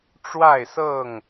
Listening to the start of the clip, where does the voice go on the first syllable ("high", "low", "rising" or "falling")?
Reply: falling